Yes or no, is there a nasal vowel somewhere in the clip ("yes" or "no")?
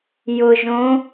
yes